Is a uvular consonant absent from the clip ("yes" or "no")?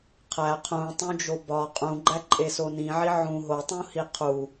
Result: no